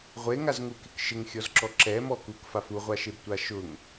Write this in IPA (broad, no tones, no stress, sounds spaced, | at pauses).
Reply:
ʁʷ e ŋ a z ŋ u k ɪ k ʃ ɪ ŋ xʲ ɔ z ǁ ɔ ǁ ɛ m ɔ k u k f a f u ʁʷ a ʃ e b tʷ a ʃ ʊ ŋ